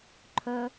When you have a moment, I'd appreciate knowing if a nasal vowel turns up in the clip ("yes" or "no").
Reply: no